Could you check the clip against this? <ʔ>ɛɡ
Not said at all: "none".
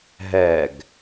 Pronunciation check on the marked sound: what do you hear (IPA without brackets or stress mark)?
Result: ɦ